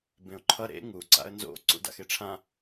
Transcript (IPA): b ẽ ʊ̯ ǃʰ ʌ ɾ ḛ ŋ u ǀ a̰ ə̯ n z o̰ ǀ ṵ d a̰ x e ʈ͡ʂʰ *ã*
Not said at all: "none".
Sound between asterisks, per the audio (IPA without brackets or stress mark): ã